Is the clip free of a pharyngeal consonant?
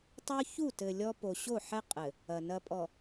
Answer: no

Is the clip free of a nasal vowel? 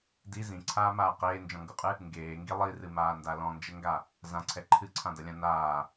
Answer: no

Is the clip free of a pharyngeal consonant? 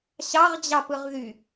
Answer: yes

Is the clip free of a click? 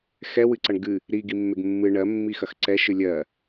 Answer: no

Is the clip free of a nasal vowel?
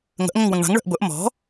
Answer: no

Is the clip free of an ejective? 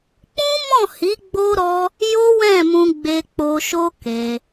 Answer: yes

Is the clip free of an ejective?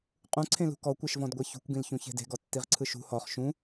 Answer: no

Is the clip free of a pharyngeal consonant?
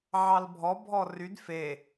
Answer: no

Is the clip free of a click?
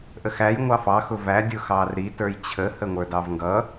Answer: yes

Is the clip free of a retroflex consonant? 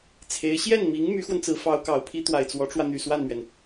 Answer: no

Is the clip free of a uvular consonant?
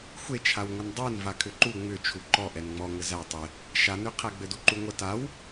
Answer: no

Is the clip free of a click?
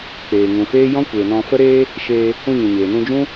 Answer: yes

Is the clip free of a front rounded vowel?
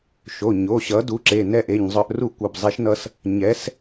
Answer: no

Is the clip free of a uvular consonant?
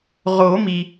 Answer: no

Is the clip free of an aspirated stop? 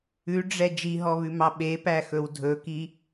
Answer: yes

